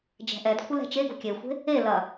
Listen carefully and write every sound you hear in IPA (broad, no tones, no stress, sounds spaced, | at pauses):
d͡ʒ ɛ̤ ʔ ɛ d kʷʰ ɪ l ɛ̤ t͡ʃ e ɡ o̤ kʲ e xʷ e̤ | e l ɐ